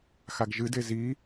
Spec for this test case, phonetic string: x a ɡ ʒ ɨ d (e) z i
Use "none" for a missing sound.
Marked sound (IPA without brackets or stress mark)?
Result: e